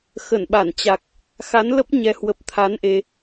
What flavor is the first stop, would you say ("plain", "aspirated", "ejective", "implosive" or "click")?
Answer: implosive